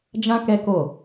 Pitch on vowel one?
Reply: high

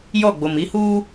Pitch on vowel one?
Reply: falling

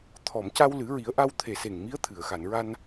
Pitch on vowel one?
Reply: low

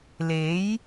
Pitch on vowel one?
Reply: rising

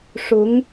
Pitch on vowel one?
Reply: rising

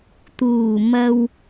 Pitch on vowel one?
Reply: low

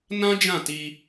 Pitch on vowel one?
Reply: high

